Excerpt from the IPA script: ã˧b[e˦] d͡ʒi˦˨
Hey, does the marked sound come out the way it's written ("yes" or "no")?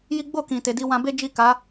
yes